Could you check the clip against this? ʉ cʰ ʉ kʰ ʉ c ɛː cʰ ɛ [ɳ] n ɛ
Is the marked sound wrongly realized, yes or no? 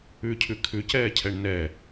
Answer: no